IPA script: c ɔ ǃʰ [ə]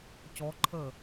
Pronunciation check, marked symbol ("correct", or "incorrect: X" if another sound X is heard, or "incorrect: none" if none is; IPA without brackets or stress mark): correct